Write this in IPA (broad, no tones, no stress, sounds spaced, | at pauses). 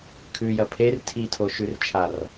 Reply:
kʰ ʉ j ɐ pʰ e r tʰ i tʰ o ʃ ʉ r t͡ʃʰ a r